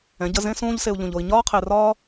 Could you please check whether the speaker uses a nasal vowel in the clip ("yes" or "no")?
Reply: yes